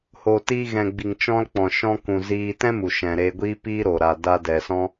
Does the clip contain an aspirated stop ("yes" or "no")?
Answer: no